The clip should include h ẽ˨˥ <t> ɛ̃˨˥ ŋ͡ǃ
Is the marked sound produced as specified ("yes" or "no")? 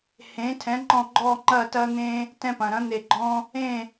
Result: no